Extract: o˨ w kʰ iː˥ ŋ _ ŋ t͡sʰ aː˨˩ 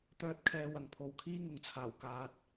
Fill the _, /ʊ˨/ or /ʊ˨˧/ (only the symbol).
ʊ˨